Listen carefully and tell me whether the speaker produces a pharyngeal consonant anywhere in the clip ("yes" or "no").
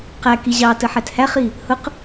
yes